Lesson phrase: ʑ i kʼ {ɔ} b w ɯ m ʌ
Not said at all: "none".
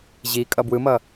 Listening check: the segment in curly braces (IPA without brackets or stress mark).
ʌ